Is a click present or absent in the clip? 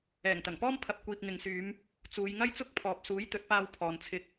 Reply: absent